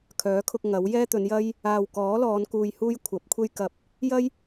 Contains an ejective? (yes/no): no